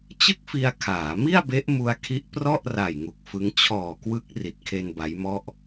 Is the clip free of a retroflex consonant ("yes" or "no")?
yes